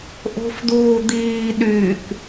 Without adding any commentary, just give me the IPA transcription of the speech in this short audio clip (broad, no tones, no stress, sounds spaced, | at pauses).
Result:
ʔ o̤ f d uː d̪ iː ɗ y k